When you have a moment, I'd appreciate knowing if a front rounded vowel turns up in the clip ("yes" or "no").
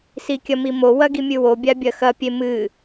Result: no